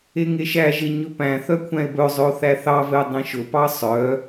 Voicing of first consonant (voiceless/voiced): voiced